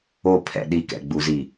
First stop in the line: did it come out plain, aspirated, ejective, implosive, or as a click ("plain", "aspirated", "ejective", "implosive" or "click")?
aspirated